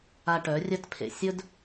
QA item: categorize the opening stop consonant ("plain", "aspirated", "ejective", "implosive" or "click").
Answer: plain